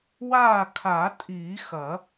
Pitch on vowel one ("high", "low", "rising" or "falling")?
falling